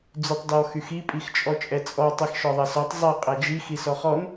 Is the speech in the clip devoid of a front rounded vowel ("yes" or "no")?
no